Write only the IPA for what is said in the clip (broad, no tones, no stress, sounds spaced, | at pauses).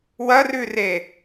w ɐ r ʉ r e